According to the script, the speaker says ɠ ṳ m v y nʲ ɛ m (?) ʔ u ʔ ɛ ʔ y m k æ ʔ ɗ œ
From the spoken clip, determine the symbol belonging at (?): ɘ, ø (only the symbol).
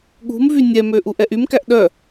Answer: ø